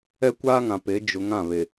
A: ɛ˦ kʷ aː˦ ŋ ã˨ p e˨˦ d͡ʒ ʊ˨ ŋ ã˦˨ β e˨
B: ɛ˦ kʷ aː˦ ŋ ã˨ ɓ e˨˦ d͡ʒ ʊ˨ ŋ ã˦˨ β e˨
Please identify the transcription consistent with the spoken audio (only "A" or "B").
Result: A